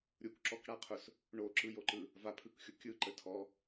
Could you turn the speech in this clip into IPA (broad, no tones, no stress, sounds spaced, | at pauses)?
ɾʲ u k ǁ ɔ k ɽ a qʰ ʊ s | ɳ o ǁ ɯ j o ǃ ɯ | v a pʰ ɯ k xʲ ʊ kʲ ɯ ǃ ə tʰ ɔ